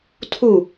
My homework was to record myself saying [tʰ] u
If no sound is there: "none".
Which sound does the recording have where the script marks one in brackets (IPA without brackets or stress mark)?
tʰ